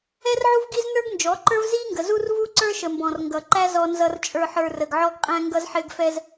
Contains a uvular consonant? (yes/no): yes